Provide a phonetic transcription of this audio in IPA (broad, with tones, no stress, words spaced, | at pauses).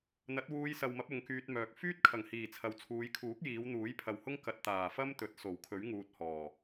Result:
n̪ɐ˨˥t̚wuː˧jsɐ˨wmɐ˨˥p̚ ʊ˨˧ŋkyː˧t̚mœː˨k̚ fyː˥t̚kʰɐ˨˩ŋhiː˨˩ t͡sʰɐ˨˥wt͡sʰuː˨˧j kʰuː˨˥k̚ jiː˨˧w n̪uː˨˥jpʰɐ˨whʊ˥ŋ kɐ˧t̚ t̪aː˨˩fɐ˥m t̪ɵ˨t̚so˨˩wkʰɵ˨˥ɥ ŋuː˧t̚hɔː˨˩